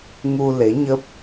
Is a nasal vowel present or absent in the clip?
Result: absent